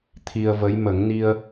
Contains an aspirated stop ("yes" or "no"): yes